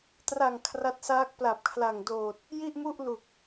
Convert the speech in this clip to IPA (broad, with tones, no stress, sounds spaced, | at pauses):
t r a˨˩ ŋ kʰ r a˦˥ t̚ s aː˦˥ k̚ p l a˨˩ p̚ kʰ l a˨˩ ŋ d oː˨˩ t̚ | j i˥˩ ʔ m u˥˩ ʔ l u˨˩ k̚